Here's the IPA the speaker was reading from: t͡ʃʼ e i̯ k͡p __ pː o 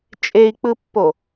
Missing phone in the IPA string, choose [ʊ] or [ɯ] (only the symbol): ɯ